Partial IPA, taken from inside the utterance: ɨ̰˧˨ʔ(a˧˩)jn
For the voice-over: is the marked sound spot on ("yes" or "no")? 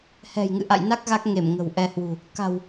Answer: no